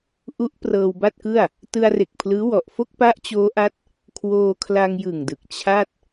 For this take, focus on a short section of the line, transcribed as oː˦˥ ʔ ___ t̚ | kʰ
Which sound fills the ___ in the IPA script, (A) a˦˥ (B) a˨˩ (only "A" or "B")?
A